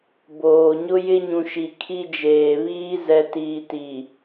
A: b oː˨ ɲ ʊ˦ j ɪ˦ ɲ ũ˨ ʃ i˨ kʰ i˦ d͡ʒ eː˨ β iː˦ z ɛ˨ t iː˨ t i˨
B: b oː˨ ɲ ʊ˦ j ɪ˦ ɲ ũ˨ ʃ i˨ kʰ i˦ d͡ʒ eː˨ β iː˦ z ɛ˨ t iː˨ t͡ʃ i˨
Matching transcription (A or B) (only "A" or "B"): A